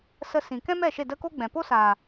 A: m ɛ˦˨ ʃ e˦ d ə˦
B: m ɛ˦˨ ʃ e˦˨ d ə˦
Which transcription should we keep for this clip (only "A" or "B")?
B